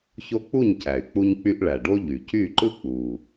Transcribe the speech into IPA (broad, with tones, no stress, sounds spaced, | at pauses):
ç o˦ k͡p u˥˨ ɲ c æ˩ y̯ k͡p u˦ ɲ k͡p y˦ ʔ ɭ æ˩ ɖ o˦ ʎ y˩ c y˥˨ ǃ ɯ˦ k͡p u˩